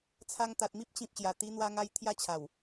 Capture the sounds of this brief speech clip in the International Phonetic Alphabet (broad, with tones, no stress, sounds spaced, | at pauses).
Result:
t͡sʰ a˧ ŋ t̪ a˨ t̚ m i˦ p̚ t͡ɕ ĩ˨ p̚ ɕ j a˨˩ t̪ i˧ n̪ w a˧ ŋ a˧ j t̪ʰ j a˥˧ t͡ɕʰ a˨˩ w